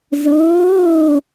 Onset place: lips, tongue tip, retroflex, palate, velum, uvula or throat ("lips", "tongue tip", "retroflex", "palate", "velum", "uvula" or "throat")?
tongue tip